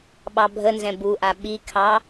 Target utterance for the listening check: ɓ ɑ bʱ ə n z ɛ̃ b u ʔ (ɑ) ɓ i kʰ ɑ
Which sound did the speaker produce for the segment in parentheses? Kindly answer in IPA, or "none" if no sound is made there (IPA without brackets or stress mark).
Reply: a